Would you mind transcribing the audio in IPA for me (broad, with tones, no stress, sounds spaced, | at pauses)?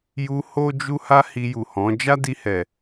j u˧ h o˦ d͡ʒ u˦ h a˦ h i˧ j u˨ h ɔ̃˨˦ d͡ʒ a˦ d i˧ h ɛ˨